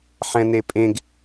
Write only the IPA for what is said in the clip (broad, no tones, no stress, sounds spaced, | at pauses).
ħ ɛ̃ n e pʼ ẽ ɡ